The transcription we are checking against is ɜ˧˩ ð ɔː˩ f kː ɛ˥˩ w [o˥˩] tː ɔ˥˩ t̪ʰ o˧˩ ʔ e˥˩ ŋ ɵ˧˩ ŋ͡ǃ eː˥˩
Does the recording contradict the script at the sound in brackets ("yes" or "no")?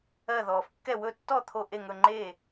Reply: yes